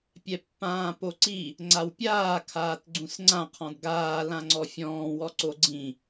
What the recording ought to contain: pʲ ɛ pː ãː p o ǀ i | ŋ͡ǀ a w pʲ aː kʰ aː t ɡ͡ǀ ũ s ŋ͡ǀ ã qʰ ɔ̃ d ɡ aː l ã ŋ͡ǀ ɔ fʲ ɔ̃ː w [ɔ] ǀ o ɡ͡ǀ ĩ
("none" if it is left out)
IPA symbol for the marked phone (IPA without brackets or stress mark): ɔ